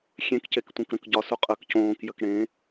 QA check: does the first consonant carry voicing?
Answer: no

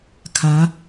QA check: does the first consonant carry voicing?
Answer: no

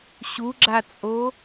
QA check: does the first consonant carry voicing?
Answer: no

